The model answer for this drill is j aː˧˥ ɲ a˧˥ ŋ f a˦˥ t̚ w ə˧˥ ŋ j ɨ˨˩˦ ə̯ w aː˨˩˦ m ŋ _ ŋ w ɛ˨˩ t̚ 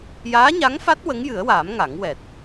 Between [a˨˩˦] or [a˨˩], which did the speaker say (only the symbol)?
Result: a˨˩˦